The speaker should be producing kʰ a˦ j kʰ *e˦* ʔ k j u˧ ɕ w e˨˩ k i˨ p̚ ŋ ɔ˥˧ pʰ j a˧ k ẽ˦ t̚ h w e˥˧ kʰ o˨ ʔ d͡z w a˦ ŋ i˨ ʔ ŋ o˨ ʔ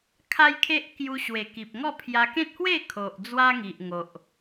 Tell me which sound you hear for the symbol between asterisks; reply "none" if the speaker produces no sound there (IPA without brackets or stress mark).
e˦